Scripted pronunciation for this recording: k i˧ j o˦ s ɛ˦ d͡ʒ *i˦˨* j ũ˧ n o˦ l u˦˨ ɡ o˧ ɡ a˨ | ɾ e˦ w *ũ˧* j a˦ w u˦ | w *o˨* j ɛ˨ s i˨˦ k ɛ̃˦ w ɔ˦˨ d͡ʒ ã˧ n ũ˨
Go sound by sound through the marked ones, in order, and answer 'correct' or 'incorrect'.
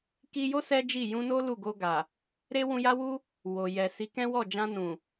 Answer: correct, incorrect, correct

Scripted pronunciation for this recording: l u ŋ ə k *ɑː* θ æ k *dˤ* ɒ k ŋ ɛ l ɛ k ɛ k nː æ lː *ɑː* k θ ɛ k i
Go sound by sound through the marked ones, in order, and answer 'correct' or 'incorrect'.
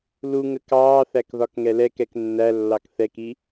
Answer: correct, incorrect, incorrect

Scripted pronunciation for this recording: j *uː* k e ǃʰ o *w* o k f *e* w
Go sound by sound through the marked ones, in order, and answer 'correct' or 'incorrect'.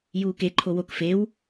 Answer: correct, correct, correct

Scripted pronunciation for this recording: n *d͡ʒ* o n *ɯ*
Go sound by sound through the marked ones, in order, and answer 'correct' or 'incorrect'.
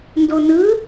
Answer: incorrect, correct

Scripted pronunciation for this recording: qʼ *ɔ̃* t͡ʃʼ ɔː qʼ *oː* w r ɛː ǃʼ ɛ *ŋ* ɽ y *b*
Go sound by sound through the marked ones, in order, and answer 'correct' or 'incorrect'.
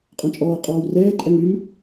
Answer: correct, incorrect, correct, incorrect

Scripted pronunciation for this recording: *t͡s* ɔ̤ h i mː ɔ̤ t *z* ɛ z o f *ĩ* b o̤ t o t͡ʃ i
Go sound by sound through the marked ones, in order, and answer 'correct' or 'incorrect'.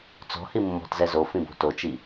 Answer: correct, correct, correct

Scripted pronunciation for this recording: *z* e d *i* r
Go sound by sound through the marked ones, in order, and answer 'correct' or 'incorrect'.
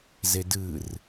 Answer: correct, incorrect

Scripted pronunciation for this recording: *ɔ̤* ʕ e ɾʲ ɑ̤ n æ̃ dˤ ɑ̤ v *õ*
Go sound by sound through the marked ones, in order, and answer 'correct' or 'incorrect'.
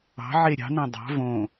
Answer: incorrect, correct

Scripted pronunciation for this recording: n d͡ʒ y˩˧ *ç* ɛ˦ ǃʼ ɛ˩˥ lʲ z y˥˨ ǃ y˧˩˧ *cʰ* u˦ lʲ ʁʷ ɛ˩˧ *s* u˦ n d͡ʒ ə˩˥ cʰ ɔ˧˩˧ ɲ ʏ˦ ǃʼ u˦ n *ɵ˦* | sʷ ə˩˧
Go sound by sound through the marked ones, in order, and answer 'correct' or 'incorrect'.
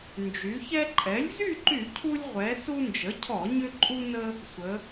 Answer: correct, correct, correct, incorrect

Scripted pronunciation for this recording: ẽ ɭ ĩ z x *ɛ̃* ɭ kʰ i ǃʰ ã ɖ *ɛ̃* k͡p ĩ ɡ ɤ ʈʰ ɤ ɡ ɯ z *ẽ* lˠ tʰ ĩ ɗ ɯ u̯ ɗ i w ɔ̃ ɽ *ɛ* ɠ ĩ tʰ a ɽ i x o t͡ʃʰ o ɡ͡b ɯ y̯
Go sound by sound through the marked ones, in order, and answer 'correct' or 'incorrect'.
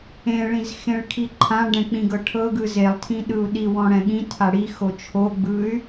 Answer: incorrect, correct, incorrect, incorrect

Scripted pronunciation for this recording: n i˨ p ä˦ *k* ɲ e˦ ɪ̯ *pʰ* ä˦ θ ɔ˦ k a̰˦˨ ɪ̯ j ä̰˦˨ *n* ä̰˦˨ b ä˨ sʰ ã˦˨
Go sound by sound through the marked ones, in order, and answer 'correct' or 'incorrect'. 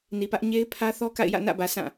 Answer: incorrect, correct, correct

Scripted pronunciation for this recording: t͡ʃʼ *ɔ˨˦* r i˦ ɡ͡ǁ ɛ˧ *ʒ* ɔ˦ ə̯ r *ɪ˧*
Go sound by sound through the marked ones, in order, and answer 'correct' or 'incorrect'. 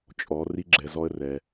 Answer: correct, incorrect, incorrect

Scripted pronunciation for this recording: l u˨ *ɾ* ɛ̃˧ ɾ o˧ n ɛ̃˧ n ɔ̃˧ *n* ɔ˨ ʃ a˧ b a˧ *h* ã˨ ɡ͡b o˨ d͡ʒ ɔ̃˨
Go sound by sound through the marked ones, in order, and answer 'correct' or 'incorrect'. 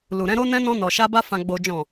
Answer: correct, correct, incorrect

